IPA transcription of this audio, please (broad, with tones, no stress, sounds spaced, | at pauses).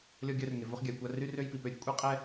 lʲ ɔ˧ ɡʲ œ˧ r ŋ e˩ v o˧ χ ɡʲ a˩ j kʷ a˧ r y˥ r ø˥ j p i˩ p ø˥ ɾʲ ə˧ kʷʼ e˥ qʼ ɛ˥